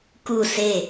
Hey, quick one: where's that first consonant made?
velum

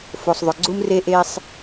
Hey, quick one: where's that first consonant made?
lips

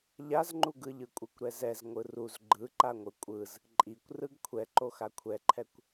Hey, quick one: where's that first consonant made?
palate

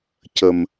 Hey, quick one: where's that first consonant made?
palate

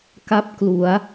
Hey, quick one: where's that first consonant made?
velum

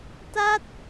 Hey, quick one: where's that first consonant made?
tongue tip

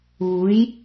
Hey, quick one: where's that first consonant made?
palate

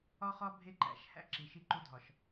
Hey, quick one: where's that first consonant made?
uvula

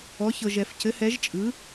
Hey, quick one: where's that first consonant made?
palate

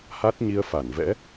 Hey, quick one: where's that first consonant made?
throat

